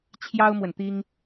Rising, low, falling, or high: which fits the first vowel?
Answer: high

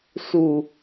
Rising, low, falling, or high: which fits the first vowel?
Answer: low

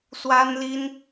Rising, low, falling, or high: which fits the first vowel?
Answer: high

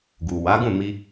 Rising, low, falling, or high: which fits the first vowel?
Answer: low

